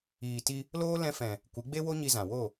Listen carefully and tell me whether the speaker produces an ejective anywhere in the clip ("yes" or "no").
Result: no